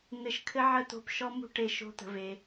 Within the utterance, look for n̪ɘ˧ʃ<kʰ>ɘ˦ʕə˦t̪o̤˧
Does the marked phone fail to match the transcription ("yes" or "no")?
no